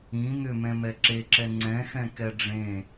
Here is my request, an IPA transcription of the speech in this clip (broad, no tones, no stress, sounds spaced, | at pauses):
ĩ n̪ ʏ m ɛ̃ m ɛ ǁ e ǁ ɛ ŋ͡ǀ ɛ̃ x ɛ̃ k ɛ ɖ͡ʐ ẽ